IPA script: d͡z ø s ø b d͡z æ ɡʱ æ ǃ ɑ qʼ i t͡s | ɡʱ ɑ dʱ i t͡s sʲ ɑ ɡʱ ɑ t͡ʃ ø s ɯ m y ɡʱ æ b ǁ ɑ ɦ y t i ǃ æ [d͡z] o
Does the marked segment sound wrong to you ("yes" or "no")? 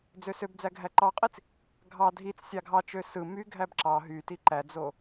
no